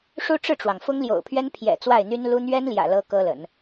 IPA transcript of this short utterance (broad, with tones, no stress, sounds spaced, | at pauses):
ʂ u˥ ʈ͡ʂ ɻ̩˥˩ ʈ͡ʂ w ɑ˩ ŋ f ʊ˥ ŋ l j o̰˨˩ ʊ̯ pʰ ɥ ɛ˥ n pʰ j ɛ̰˨˩ t͡s w a˥˩ ɪ̯ n̪ y˥ n l u˥ n̪ ɥ ɛ˥ n l j ä̰˨˩ l ɤ˥ k ɤ˥ l ə̰˨˩˦ n